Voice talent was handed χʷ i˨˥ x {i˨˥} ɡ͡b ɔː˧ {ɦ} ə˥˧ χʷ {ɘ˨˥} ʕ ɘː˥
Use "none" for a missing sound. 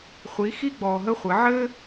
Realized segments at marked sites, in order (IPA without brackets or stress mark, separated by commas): i˥, ɦ, ɘ˨˥